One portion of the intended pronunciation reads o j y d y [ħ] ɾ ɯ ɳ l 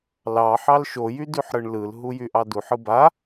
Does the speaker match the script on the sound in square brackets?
yes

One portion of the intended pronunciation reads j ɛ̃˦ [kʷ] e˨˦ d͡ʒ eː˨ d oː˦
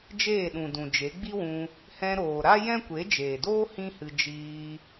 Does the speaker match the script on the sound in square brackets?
yes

